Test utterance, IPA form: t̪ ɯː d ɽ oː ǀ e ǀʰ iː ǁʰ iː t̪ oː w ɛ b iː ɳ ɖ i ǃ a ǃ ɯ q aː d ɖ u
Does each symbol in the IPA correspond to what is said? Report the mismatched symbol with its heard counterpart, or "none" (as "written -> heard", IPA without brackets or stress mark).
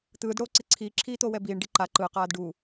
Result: none